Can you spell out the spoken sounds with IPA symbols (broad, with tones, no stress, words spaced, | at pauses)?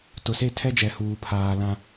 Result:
tʊ˨se˦tʰɛ˦d͡ʒɛ˨ huː˨pʰaː˨lã˦